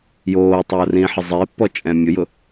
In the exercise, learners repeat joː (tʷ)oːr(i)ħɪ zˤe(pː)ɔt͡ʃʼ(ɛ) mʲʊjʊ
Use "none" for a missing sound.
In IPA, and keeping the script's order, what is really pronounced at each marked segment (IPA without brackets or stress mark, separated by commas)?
tˤ, ĩ, pː, ɛ̃